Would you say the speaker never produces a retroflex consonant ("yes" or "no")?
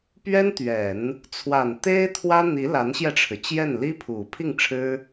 no